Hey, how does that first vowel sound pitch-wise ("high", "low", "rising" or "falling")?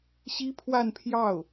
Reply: high